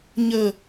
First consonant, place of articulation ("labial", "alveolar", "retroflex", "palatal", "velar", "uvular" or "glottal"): palatal